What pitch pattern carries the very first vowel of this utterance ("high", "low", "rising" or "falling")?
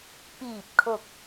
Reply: low